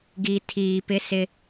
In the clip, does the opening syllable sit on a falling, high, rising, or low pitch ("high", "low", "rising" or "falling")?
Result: low